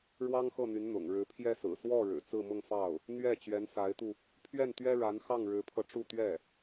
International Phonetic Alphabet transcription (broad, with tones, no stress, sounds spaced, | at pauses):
ɻ w ɑ˥ ŋ x ɤ˥˩ n̪ y˧˥ n n̪ ʊ̰˨˩ ŋ ɻ ɻ̩˧˥ pʰ j ɛ˥ s ɹ̩˨˩ s w ɔ˥˩ ɻ ɻ̩˨˩ t͡s ɹ̩˥˧ m ʊ˥˧ ŋ f ɑ˥˩ ʊ̯ | n̪ ɥ ɛ˥˩ t͡ɕ ɥ ɛ˧˥ n s a˧˥ ɪ̯ t̪ u˧ | pʰ ɥ ɛ˥˩ n t̪ ɥ ɛ˥ ɻ a˧˥ n x ɑ˥˩ ŋ ɻ ɻ̩˧˥ pʰ ɤ˧ ʈ͡ʂ u˥˧ t̪ ɥ ɛ˥˩